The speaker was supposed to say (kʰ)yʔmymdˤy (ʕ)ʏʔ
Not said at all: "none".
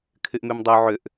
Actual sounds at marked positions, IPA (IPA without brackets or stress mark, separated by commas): kʰ, ʕ